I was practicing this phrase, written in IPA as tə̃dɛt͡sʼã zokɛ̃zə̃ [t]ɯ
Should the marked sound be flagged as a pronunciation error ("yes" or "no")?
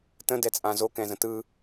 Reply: no